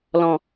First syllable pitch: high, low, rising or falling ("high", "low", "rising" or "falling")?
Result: low